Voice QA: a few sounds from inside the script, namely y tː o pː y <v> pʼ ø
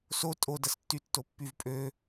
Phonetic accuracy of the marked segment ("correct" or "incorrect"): correct